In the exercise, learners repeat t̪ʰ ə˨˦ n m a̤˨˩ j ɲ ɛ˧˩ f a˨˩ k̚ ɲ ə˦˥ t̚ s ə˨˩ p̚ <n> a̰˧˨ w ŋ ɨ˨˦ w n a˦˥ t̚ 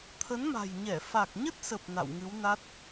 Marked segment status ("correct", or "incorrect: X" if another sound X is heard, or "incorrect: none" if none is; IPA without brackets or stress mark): correct